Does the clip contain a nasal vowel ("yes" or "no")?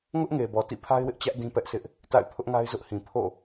yes